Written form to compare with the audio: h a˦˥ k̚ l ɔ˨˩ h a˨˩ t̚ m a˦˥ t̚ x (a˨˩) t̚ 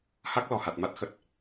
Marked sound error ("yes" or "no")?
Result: yes